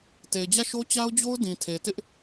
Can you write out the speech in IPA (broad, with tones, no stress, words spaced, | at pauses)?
te˨ɪ̯d͡ʑä˦˨ʃo˦ t͡ɕa˦ʊ̯d͡ʑo˦ʊ̯ dĩ˨tʰe˨tɪ˦ʔ